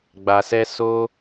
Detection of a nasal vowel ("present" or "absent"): absent